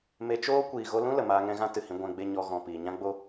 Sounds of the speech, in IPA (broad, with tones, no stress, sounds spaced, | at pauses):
m e˧ t͡ʃ oː˦ kʷ iː˨ ɣ o˧ l ũ˦ l ə˨ m aː˧ ŋ ɛ̃˧ ɣ ã˦ t ɨ˨ h ĩ˧ ɡʷ ɛ̃˧ ɡ͡b e˦ ɲ ɔ˦ ɣ ɔ̃˨ p iː˨ ɲ ã˦ ɡ͡b o˦